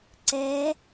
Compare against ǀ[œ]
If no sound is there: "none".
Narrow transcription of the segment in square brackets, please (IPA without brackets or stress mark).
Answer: ɛ